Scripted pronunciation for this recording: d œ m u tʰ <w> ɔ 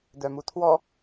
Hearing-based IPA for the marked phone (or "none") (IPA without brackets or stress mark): w